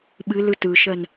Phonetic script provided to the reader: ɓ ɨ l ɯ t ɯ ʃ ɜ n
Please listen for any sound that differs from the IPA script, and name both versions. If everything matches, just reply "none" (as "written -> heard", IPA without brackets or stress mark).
none